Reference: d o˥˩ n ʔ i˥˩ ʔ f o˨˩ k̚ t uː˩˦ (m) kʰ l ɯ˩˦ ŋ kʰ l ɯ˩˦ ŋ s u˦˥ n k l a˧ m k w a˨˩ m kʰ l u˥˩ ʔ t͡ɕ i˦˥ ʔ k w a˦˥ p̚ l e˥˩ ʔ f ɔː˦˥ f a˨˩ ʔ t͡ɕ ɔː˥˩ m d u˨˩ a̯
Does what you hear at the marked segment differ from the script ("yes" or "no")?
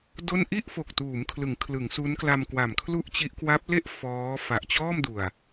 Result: no